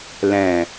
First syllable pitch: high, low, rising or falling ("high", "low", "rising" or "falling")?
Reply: low